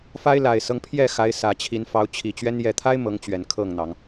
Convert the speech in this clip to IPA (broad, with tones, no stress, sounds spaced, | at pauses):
f a˦ ɪ̯ l a˨˩ ɪ̯ s ɤ˦ ŋ pʰ j ɛ˥˨ x a˨˦ ɪ̯ s ä˨˩ t͡ɕʰ i˨˦ n f ɑ˨˦ ʊ̯ t͡ɕʰ i˨˩ t͡ɕ ɥ ɛ˦ n j ɛ˨˩ t̪ʰ a˦ ɪ̯ m ɤ˨˦ ŋ t͡ɕ ɥ ɛ˨˦ n kʰ ɤ˥˨ ŋ n̪ ɑ˨˦ ŋ